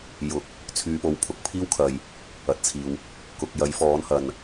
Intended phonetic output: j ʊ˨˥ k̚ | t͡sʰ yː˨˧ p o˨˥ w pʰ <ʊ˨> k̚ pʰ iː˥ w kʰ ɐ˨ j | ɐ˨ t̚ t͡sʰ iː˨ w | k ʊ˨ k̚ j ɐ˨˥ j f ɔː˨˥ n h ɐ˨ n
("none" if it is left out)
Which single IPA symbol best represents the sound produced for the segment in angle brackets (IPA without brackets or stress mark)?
ʊ˨